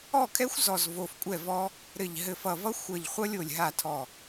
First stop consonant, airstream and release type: aspirated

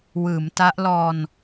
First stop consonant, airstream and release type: plain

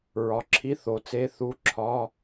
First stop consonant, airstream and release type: click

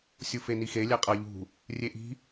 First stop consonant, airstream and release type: ejective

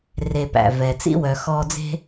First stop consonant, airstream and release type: plain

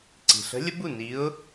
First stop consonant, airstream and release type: click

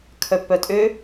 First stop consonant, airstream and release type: aspirated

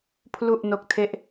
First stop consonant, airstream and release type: aspirated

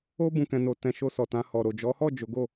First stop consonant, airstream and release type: plain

